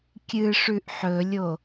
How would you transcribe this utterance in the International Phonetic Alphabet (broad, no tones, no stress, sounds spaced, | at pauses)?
kʲ ɨ ʂ ʉ ʔ ħ ɵ lʲ o